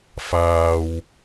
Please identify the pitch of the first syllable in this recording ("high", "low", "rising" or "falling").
low